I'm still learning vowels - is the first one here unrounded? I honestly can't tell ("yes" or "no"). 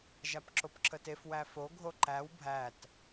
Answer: yes